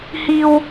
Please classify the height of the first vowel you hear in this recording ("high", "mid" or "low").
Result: high